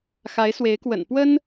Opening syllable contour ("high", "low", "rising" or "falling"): rising